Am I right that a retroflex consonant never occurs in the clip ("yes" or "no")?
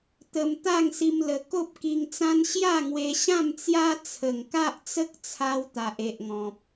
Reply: yes